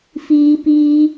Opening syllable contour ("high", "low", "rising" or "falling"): high